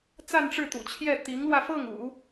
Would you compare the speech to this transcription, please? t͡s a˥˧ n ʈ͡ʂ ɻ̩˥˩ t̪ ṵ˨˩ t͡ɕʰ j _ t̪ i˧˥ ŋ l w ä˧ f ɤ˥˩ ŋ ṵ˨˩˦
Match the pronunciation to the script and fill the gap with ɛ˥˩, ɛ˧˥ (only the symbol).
ɛ˥˩